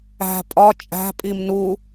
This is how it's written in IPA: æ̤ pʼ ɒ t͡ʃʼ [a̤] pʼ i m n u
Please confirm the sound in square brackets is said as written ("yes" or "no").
no